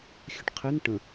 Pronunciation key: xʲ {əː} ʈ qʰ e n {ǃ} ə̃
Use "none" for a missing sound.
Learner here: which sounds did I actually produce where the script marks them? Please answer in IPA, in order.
ə, ʈ

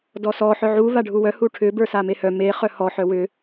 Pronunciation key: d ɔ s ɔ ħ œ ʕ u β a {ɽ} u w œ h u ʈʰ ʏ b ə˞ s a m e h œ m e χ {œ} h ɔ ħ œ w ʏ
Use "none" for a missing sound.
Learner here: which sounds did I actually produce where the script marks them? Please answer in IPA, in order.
ɖʱ, œ

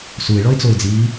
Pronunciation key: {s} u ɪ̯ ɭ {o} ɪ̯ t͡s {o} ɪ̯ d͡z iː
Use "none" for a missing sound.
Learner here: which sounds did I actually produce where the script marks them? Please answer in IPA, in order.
s, ɔ, o

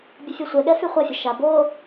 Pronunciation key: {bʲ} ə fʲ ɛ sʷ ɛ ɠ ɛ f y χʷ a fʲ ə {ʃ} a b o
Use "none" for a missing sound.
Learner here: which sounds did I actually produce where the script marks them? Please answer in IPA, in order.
bʲ, ʃ

